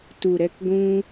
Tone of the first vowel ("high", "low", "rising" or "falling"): low